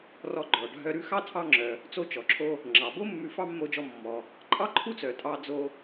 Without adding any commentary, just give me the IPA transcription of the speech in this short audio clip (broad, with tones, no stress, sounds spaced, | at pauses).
r ɔ˧ ɡ͡ǃ ɔ˩ ɖʱ œ˧ ɾ ʉ˥ x ɑ˥ tʰ ɑ˧ ŋ͡ǁ œ˩ | t͡s o˧ t͡ʃ ɔ˩ ǁʰ o˧ | ŋ͡ǁ ɑ˩ b o˥ mː ʉ˧ f ɑ˥ mː o˧ d͡ʒ ɔ˧ mː ɔ˩ | ǃʼ ɑ˥ ǃʰ u˥ t͡s œ˩ tʼ ɑ˧ d͡z o˧